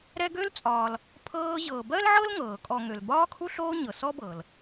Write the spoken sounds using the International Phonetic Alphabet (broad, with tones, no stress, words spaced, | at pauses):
ɾɛ˦ɡø˥lt͡sʼɒː˨l | pʰɤː˦ʑɤː˨ bɜ˥lʕɤ˥l ŋɤː˩kʼɔ˨ ŋø˩lbɒː˦kʰu˦ ɬoː˦ ɲɤ˨sɔ˥bɤ˩l